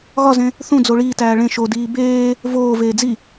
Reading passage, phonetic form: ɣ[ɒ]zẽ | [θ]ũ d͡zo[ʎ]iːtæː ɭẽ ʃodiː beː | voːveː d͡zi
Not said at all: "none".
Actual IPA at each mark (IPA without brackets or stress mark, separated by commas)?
ɒ, θ, ɭ